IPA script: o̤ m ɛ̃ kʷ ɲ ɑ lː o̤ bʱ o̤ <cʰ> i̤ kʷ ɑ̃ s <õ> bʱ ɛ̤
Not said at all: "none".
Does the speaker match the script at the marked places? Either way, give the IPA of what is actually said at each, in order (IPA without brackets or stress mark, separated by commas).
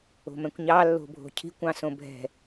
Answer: cʰ, õ